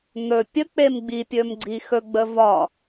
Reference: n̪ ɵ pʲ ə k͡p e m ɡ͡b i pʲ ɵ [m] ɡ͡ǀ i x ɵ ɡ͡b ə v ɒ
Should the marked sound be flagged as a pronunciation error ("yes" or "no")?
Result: no